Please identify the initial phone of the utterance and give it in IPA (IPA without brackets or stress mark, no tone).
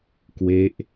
k